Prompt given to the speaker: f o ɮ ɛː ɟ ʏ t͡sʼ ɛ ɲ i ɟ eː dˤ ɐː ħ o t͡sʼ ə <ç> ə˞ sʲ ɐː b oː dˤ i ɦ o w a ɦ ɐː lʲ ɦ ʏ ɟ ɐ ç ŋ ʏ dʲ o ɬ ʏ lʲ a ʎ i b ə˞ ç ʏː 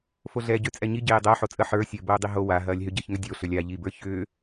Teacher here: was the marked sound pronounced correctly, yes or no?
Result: no